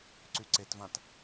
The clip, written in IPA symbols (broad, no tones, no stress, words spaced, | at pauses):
ǀyǀetvãt